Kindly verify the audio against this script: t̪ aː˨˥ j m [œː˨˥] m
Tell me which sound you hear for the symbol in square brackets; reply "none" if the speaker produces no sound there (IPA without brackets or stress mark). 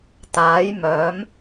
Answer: œː˨˥